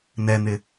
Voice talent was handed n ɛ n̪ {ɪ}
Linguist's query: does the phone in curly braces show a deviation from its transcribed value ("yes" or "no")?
no